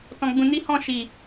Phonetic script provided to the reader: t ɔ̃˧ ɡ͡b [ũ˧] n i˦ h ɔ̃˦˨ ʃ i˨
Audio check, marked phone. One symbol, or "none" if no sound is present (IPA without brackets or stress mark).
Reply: ũ˧